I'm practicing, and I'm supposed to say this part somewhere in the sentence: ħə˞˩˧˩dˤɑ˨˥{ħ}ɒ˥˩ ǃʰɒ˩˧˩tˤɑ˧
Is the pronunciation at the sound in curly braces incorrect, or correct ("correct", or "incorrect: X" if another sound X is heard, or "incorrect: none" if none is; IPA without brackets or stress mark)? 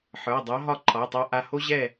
incorrect: ɦ